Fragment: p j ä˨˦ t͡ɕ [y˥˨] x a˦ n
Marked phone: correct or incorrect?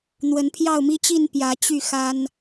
correct